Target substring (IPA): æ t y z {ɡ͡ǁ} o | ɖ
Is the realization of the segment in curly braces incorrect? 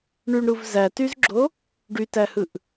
no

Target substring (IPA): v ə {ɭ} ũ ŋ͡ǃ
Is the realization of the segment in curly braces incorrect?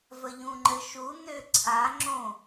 yes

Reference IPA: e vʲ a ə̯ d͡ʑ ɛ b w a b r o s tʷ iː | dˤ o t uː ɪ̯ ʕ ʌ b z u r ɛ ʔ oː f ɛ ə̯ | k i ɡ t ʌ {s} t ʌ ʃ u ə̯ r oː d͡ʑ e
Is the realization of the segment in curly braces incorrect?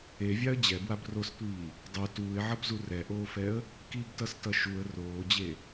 no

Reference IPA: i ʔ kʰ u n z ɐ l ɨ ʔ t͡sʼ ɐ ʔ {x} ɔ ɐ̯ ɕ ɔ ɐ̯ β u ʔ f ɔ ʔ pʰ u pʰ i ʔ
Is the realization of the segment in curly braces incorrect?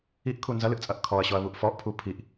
yes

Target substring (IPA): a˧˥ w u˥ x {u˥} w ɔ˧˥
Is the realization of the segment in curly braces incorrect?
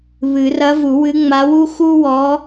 no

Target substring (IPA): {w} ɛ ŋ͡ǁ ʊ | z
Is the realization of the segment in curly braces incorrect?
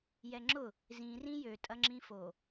yes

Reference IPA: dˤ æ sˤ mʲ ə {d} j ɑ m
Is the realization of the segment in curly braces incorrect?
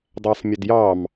no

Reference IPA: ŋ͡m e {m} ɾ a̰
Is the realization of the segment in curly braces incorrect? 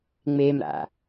no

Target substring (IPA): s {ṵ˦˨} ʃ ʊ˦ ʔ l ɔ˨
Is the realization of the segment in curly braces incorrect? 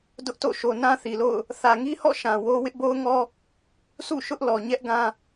no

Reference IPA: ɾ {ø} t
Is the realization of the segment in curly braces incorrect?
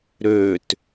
no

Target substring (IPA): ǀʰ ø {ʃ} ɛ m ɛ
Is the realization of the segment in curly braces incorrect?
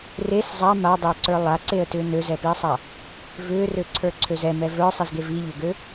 yes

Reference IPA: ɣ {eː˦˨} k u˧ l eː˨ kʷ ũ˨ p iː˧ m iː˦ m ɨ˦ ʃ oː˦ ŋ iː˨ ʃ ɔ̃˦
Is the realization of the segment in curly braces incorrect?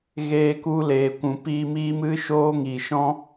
yes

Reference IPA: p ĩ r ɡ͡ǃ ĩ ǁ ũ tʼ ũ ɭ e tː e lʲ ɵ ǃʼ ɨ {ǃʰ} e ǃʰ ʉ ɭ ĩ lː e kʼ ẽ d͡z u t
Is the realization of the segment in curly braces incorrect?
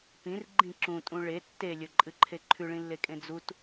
no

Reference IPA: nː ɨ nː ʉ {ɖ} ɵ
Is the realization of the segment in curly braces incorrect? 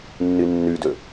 yes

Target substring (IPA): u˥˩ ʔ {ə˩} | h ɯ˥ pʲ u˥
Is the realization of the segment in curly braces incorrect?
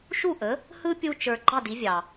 yes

